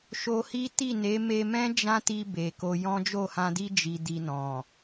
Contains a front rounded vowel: no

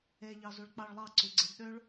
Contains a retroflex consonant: yes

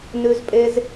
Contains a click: no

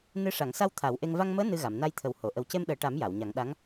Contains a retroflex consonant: yes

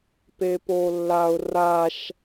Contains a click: no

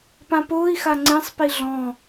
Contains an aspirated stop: no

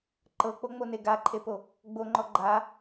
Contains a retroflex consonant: no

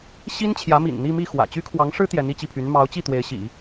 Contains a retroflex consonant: yes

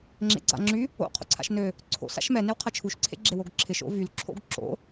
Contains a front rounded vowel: yes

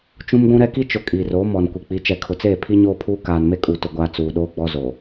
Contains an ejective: yes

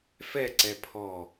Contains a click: yes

